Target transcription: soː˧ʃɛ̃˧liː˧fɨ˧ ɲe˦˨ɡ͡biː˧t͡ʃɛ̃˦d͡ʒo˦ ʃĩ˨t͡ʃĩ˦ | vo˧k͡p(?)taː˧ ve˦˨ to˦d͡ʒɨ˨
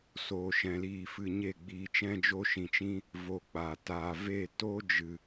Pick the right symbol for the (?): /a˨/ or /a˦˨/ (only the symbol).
a˨